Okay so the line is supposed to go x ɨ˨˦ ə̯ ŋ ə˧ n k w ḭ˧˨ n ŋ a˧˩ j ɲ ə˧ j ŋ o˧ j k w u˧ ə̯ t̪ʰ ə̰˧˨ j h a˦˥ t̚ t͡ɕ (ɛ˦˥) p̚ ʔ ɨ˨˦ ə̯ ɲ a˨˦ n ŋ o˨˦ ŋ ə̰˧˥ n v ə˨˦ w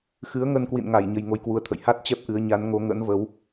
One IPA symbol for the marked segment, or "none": ɛ˦˥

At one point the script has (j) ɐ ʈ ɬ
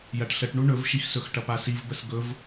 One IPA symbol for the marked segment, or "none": j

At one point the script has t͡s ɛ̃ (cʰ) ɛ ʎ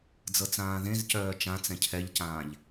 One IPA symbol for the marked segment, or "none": cʰ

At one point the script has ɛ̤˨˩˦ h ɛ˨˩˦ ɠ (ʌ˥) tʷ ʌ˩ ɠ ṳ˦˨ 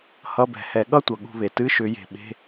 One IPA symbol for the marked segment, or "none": ʌ˥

